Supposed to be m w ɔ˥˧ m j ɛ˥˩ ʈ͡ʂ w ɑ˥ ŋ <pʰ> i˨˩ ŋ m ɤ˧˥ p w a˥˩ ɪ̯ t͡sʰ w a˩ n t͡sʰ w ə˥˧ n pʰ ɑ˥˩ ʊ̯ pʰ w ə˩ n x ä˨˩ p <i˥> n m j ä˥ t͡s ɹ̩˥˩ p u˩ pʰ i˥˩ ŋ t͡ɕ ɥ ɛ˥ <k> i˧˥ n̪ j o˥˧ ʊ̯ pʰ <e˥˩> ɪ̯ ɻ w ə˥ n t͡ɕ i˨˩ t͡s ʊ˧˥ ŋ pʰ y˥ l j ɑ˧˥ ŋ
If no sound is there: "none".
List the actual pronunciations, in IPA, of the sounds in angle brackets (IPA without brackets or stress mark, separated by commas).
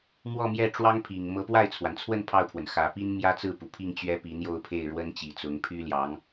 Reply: pʰ, i˥, p, e˥˩